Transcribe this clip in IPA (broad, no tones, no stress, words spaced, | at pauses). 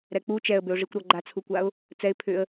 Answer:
ɾɛk͡pu t͡ʃɛə̯bʏʊ̯ʐikʷ ɾɔɡ͡ǃat͡sʰukʷaʊ̯ | t͡sɛɪ̯ pʰʏə̯